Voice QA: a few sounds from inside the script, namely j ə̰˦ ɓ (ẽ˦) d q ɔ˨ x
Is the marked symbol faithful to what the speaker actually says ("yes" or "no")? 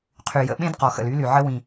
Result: yes